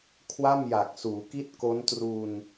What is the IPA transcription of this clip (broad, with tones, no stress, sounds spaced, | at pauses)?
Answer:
kʰ w a˥˩ m j a˨˩ k̚ s uː˩˦ k i˥˩ t̚ k o˦˥ n t r u˧ n